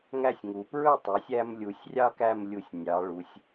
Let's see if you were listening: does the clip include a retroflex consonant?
yes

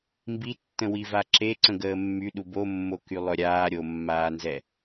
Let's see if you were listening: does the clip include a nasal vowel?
yes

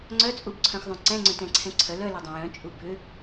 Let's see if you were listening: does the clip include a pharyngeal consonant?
no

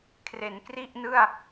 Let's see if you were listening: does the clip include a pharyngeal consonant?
no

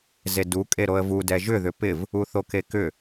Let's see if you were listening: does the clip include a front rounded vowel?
yes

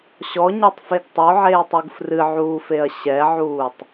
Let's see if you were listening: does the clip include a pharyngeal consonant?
yes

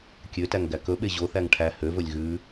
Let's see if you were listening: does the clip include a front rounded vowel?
yes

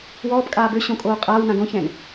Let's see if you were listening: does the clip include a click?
no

